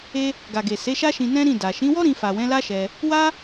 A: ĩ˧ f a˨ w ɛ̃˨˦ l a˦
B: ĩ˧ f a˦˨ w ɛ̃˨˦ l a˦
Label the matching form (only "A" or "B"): A